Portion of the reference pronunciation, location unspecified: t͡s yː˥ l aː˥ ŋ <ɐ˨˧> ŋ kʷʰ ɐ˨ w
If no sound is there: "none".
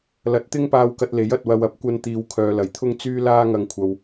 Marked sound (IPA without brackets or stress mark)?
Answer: ɐ˧